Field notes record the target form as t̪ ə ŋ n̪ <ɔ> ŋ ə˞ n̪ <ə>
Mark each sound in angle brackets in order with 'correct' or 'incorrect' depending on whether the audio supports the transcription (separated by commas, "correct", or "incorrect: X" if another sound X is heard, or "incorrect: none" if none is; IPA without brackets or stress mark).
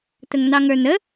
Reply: incorrect: ɑ, correct